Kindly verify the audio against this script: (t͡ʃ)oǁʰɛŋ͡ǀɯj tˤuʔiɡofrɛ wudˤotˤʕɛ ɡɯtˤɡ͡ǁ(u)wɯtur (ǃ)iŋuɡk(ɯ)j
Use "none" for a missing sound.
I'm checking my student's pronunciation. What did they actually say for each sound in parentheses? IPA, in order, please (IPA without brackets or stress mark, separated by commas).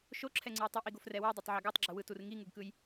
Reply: ʃ, ɯ, ŋ, ɯ